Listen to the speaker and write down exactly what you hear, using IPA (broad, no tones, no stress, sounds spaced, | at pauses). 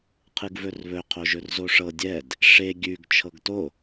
qʰ ɨ ɡ v ɵ r β ɵ qʰ o ʒ ɵ r z o ʂ ɤ dʲ ɛ d | ʂ e ɡʲ ʉ ɡ t͡ʃʰ ɤ ɡ t o